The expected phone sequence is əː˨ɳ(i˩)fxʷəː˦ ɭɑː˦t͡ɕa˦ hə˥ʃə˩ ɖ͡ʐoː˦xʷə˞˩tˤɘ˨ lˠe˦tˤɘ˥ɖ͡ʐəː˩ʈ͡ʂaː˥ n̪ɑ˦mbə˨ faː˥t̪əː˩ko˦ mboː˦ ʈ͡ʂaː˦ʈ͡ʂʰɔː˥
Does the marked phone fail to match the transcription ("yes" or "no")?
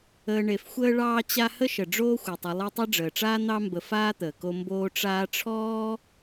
yes